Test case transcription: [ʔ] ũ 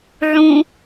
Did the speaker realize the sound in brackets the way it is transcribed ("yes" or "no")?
no